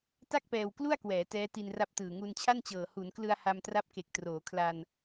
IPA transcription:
ta˥˩k̚pɛː˧w klu˥˩a̯kwɛː˩˦ tɛː˦˥ti˧nra˦˥p̚tɯː˨˩ ŋu˧nt͡ɕʰa˥˩nt͡ɕɤː˨˩ hu˩˦nklɯ˧a̯ ha˧mtra˦˥p̚ke˨˩k̚ troː˩˦kʰla˧n

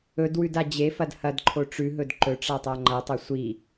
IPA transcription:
ɵdwʉda d͡ʑefɐd hɐdǃʰo ʈ͡ʂʉɦɵd ǃɵʈ͡ʂatˤa ŋ͡ǃɐtˤɐ sʷi

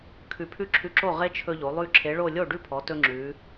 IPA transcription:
kʰʉ˧˩pʰʉ˥˩ǁʰʉ˧ǁo˥˩ ʁe˧ t͡ʃʰɵ˧ʎo˩˧lˠʉ˧ ǁʰe˩˧ɭo˧˩ lʲo˥˩ɖʉ˥˩pʰɔ˩˧ tɵ˧ŋ͡ǁʉ˩˧

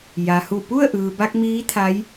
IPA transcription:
ja˩hu˧˩ pu˥˨ə̯ʔɯː˩ba˧k̚ miː˧˥t̪ʰa˧˥j

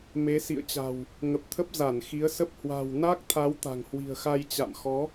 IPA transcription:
me˨˦sḭ˧˨ə̯t͡ɕa̤˨˩w | ŋə˨˩p̚t̪ʰə˦˥p̚ za˧˩nxi˨˦ə̯sə˦˥p̚ hwa̤˨˩w na˦˥k̚t̪ʰa˨˦w t̪a̤˨˩ŋhwi̤˨˩ə̯xa˧j t͡ɕa̰˧˨mxɔ˨˦

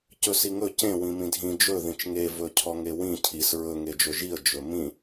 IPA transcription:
cɵsiŋɵ cẽ wĩmĩdʱĩ d͡ʒɵ ðĩt͡ʃŋe vɵcʰɔŋewĩ cʰis ɹɵ ŋed͡ʒɵʒiə̯ d͡ʒɵmĩ

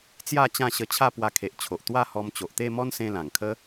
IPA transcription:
t͡sja˥˧t͡ɕã˥˧ ɕə˧t͡ɕʰa˥˧ pwa˧ kʰe˨ʔt͡ɕʰo˨ʔ t̪wa˥˧hɔ˧m t͡ɕo˨ʔt̪e˥˧mɔ˦nsẽ˧ lã˨˩ŋkʰə˦

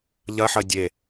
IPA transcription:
ʎɐħɐ dʲe

